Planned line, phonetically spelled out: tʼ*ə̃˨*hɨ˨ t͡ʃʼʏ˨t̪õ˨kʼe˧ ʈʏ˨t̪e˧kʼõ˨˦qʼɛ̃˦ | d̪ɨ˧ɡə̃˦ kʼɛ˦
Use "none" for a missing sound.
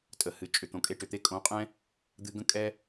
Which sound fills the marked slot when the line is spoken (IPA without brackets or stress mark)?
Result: ə˨